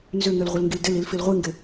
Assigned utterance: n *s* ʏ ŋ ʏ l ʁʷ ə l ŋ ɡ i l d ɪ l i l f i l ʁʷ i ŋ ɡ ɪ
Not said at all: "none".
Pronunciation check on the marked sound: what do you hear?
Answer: z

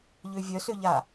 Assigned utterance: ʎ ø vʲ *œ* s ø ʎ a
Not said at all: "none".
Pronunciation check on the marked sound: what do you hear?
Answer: œ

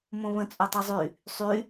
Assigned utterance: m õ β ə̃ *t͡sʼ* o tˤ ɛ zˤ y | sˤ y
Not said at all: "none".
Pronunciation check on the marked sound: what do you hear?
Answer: t͡sʼ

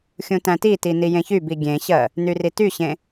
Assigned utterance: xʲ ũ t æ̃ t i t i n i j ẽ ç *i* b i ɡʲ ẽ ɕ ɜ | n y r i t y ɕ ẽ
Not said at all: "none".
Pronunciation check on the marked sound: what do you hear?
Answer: y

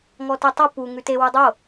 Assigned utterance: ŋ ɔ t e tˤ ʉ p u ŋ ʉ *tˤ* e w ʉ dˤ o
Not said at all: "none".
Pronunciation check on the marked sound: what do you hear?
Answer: t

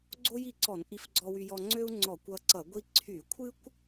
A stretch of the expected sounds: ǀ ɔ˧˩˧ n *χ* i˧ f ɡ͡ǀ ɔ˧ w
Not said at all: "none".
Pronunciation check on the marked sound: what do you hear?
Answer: ʔ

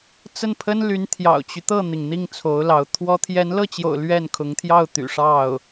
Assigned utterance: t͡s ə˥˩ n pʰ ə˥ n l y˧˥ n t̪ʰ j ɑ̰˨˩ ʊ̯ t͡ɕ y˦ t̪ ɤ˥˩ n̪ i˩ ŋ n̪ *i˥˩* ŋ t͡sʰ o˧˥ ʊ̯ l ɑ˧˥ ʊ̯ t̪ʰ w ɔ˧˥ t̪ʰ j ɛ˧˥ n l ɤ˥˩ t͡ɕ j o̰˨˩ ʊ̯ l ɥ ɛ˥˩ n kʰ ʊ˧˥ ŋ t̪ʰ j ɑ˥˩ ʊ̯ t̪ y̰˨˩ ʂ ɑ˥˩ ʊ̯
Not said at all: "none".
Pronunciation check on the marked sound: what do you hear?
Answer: i˥˩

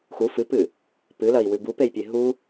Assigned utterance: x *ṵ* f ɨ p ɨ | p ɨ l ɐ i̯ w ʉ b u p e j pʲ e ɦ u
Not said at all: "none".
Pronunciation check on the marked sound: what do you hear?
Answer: u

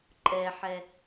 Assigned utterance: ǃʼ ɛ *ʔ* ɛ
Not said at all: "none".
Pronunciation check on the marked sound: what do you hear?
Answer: ħ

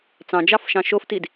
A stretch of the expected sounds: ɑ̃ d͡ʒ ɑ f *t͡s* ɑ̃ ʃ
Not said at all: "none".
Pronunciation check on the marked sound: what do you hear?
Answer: ʃ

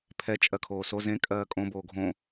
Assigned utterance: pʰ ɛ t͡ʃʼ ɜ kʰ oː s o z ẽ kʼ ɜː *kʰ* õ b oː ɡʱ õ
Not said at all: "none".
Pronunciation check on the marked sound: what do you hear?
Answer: kʼ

